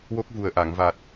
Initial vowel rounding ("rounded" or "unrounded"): rounded